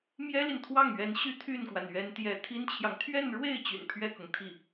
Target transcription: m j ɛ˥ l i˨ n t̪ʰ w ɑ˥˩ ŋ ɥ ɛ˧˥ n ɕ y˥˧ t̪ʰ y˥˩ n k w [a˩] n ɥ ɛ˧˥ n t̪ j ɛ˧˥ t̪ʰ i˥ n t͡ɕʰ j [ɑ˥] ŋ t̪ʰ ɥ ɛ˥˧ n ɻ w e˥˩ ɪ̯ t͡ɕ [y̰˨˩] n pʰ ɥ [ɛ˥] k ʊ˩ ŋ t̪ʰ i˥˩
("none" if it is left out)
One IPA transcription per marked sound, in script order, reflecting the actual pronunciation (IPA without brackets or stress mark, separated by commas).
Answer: a˩, ɑ˨, y̰˨˩, ɛ˥˩